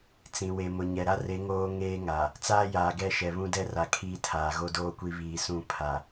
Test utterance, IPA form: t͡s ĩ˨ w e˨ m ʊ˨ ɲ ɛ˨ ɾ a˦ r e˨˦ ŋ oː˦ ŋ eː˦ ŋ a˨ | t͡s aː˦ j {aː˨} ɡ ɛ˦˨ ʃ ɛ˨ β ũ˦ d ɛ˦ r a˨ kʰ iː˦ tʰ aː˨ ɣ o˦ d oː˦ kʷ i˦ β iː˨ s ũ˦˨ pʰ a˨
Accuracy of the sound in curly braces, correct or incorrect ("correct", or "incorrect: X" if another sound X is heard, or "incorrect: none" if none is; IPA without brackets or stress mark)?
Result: correct